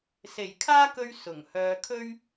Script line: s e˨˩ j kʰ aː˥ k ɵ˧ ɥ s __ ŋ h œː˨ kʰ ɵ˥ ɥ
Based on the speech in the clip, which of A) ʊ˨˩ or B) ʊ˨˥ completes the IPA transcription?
A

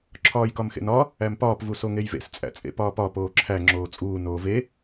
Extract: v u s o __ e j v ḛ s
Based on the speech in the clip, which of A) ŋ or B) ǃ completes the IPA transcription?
A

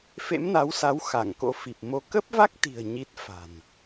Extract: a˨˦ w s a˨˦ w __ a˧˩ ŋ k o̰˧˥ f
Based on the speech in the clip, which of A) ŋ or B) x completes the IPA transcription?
B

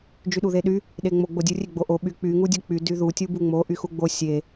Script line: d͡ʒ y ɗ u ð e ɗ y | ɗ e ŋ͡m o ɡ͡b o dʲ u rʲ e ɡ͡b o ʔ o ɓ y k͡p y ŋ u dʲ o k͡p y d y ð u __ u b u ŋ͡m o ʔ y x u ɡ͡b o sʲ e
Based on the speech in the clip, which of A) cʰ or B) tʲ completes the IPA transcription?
B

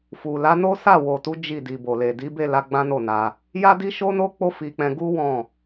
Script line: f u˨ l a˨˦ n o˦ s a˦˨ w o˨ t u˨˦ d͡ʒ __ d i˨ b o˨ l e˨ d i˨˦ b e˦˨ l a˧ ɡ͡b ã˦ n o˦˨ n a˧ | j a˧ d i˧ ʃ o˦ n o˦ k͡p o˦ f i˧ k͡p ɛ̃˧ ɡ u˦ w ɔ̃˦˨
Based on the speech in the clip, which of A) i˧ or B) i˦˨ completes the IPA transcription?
B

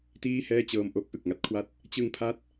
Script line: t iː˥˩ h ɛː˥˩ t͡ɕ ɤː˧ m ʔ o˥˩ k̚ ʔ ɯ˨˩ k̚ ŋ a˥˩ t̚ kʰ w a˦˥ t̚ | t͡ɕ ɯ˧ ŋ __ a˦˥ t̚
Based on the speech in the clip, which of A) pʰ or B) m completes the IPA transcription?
A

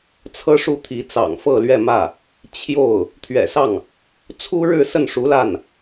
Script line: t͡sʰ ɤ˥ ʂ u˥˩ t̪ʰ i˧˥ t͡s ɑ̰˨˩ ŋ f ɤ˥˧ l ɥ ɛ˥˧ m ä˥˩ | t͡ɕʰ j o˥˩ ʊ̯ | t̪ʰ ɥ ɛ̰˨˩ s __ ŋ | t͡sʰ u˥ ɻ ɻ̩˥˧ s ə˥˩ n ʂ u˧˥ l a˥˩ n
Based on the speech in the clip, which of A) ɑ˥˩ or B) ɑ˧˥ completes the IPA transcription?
A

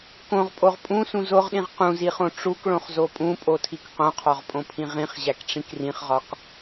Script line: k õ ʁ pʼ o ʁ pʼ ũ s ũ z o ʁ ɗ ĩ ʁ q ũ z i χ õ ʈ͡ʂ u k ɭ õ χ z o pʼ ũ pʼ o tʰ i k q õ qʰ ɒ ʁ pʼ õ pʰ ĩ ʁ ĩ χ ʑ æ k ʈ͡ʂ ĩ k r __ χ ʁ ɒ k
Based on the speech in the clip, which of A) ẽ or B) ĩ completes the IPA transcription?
B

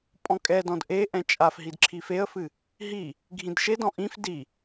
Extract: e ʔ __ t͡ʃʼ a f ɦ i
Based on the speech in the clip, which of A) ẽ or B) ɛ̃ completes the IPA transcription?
B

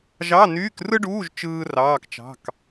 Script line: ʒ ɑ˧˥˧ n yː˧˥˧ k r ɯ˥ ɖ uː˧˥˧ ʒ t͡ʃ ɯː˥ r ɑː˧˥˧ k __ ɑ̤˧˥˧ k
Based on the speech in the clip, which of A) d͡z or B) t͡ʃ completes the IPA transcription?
B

